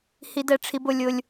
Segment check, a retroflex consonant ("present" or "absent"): present